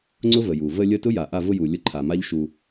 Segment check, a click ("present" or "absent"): present